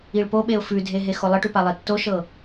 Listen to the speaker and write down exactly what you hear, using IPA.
i ɭ p o ɓ e ʊ̯ f ʉ dʱ e ɦ e x o lˠ ə ʈ ʉ p a lˠ e tː o ʃ ɤ

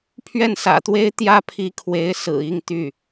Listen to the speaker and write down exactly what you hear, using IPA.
pʰ ɥ ɛ˥˩ n s ä̰˨˩ t̪ w e˥ ɪ̯ t̪ j ä˥ pʰ i˧˥ kʰ w e˧˥ ɪ̯ s ɹ̩˨˩ i˥˧ ŋ t̪ y˥˩

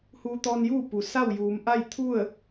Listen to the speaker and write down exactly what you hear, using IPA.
h uː˧ t̪ ɔː˧ n j uː˥˨ p u˩ s a˥˨ w j uː˩˧ m ʔ a˥˨ j t̪ʰ u˥˨ ə̯

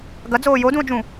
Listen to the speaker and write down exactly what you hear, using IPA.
ɡ ɐ d͡z oː j o d ũ o̯ d͡ʒ ũ

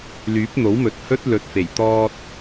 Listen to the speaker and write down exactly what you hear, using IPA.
l yː˨˥ p̚ n̪ o˨˥ w m ɵ˨ t̚ h ɵ˥ t̚ l ɵ˨ t̚ f e˨˩ j t̪ ɔː˧ t̚

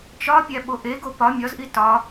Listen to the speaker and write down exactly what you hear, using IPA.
t͡ʃ ɒ pʲ æ ɓ o ʔ e ɡ o p ɒ mʲ ɒ z ʔ i t ɒ

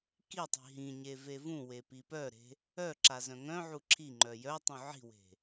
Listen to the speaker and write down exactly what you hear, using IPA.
k i tˤ i̤ ɦ ĩ ɲ e v e v ũ w e p i p œ ɾ e̤ | œ ǁ a z œ̃ ŋ œ̃ ʕ u ǁʰ i ŋ͡ǃ œ j œ tˤ ũ ʕ i̤ w e̤

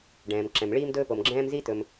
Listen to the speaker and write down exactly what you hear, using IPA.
ɖ ɛ̃ː˩ m ǁ ɛ̃˩ m ɭ iː˥ m d ɵː˥ p o˩ m ɡ͡ǁ ɛ̃ː˥ m z i˥ t̪ ɵ˩ m

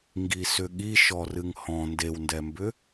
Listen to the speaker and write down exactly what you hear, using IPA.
ŋ ɡ i s ʏ ɠ i ʃ ɔ r ɨ ŋ h ɔ̃ n d e w n d ɛ m b ʏ

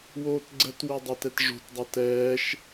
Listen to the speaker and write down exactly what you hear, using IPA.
w oː t ɡ͡ǀ ə t w ɪ dˤ ɐ t ɛ t ʐ o̤ t dˤ ɐ t ɛː ʃ

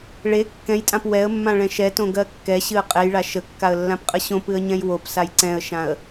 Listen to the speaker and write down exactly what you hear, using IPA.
ɭ e kː ɛ̃ j tʼ ã p w ɛ ə̯ mː ã ɭ ɛ̃ ʃ ɛ t õ ɡ ɜ kː ɛ ɕ ɨ ə̯ qʼ ɛ j ɭ a ʃ ə kː a ə̯ lː ã p qʼ ə ɕ õ p ɨ ə̯ ɲ ɛ̃ j w o p s a j ǀ ɛ̃ ə̯ ʃ ã ə̯

